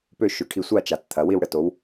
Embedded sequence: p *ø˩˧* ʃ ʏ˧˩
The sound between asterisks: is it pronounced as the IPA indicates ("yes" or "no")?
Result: no